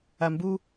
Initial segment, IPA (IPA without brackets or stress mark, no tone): a